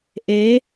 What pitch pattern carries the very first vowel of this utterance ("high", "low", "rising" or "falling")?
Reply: rising